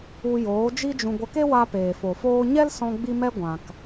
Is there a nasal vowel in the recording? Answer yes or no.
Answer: yes